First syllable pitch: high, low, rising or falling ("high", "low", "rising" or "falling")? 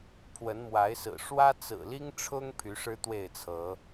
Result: rising